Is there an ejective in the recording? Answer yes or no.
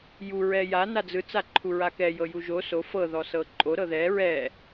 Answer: yes